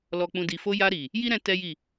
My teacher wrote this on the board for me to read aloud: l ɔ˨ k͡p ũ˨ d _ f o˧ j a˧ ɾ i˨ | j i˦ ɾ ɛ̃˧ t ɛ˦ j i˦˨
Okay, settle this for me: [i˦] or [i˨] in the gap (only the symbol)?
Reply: i˨